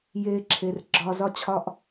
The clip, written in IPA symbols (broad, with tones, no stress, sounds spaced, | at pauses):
j eː˧ ǁʰ e˨ r ɡ͡ǁ ɒ˧ z ɒ˦ t͡ɕʰ ɒ˦ ʔ